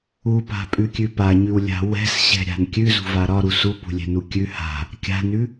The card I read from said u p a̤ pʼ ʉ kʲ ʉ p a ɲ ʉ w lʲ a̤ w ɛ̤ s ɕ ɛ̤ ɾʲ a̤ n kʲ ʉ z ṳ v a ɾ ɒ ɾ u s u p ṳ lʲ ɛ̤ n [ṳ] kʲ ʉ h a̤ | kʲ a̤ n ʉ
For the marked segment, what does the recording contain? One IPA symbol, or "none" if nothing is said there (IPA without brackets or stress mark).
u